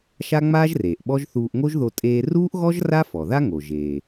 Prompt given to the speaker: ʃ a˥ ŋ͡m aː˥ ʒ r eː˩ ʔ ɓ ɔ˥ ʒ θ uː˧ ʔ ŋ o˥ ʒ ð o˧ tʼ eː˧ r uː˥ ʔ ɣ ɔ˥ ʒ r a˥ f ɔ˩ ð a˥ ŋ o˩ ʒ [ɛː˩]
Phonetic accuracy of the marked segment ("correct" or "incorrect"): incorrect